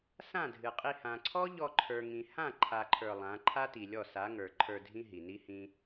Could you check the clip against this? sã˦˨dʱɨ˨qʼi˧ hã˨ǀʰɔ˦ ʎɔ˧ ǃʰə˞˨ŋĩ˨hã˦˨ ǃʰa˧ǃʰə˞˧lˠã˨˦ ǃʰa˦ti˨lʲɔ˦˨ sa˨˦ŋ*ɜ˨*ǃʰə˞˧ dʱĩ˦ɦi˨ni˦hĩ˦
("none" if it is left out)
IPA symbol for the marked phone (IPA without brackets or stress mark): ə˞˨